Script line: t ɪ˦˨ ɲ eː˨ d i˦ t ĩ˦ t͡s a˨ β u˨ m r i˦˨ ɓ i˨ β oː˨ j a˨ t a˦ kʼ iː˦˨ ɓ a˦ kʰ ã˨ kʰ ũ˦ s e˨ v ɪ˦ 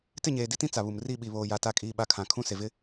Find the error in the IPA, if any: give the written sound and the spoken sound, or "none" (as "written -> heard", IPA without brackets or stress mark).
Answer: none